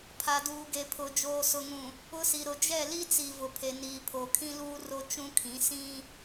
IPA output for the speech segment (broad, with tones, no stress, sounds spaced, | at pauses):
pʰ a˨ d uː˨ ɡ e˨ pʰ ʊ˨ d͡ʒ oː˨ s ʊ˨ ŋ ũ˨ | ʊ˦ s i˨ ɾ ʊ˨ d͡ʒ ɛ˦˨ l i˦ t͡s i˨ v ʊ˨ pʰ e˨ n iː˨ pʰ o˨ kʰ ĩ˦ l uː˦ r o˦ t͡ʃ ũ˦ kʰ ĩ˨˦ s ĩ˦